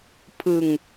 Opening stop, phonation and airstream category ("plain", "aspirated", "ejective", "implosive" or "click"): aspirated